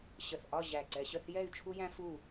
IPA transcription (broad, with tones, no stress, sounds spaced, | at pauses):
ɕ ə˧˩ θ ʔ ɒ˥˧ ʑ æ˧˩ ǀ ɛ˧ ɕ ə˥˧ θ j ɛ˥˧ y̯ t͡ʃʰ u˥ j æ̃˥ f u˥˧